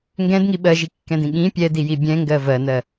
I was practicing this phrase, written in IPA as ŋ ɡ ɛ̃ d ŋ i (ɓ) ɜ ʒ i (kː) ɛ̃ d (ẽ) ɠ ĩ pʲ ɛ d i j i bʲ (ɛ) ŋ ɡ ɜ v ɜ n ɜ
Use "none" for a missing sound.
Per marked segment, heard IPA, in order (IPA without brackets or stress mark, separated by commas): ɓ, kː, ĩ, ɛ̃